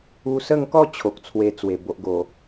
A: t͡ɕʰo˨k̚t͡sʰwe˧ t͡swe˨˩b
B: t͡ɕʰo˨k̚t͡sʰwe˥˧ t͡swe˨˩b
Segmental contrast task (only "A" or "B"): A